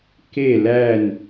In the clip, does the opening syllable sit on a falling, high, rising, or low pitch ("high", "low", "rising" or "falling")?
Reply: falling